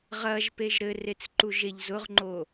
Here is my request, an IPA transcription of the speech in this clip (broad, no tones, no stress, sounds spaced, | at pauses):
ʁ ɐ ʒ p e ʒ ɾ ɘ r e t͡s ǃ u ʒ e ʎ z ʊ ʁ ŋ͡ǃ o